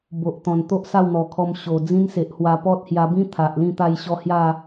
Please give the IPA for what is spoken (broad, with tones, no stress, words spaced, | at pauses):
bo˨ʔt̪ɔ̃˨˩nt̪o˦ʔ sa˥˧wn̪ɔ˨˩kʰɔ˧m ɕo˨˩ d͡zĩ˦nse˨ʔhwa˧ pɔ˦t̚hja˧bĩ˦ t̪ʰa˨ʔlĩ˥˧ t̪a˧jɕɔ˧ hja˥˧